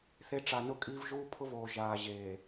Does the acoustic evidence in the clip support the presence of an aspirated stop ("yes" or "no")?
yes